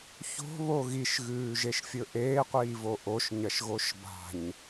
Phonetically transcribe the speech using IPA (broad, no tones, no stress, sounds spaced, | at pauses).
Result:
ç o̤ β o ɣ i ʃ ɣ ʉː ʒ e ʃ fʲ ɵ ʔ eː qʷ iː v o ʔ o ʃ ɲ ɐ ʃ ɣ o ʃ b a̤ ɲ